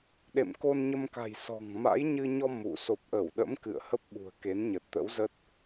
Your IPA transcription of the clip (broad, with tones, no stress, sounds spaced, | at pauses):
ɗ ḛ˧˨ m k o˧ n ɲ ə˧ m k a̤˨˩ j s ɔ̤˨˩ ŋ m a̰˧˥ j ɲ ɨ˧ ɲ ɔ˧ m ṵ˧˨ s o˨˩ p̚ ʔ ə˧˩ w ɗ ə̰˧˥ m k ɨ̰˧˨ ə̯ h ə˦˥ p̚ ɓ ṳ˨˩ ə̯ k e˨˦ n ɲ ə˨˩ t̚ t̪ ə̰˧˥ w z ə˦˥ t̚